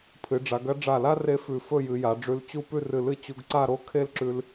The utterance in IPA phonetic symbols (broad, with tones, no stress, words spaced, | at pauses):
pʰɨ˩˧ɖ͡ʐa˩˧ɡɐ˥ ɖ͡ʐa˧˩la˥ re˥fʉ˧˩ fɵ˥˧jɨ˩˧ja˩˧ ɖ͡ʐʉ˧lt͡ɕu˥˧ pʉ˥˧rɨ˧˩lɨ˥˧ t͡ɕu˧ɡǀa˥˧ɾo˥ kʰe˥lǁʉ˧l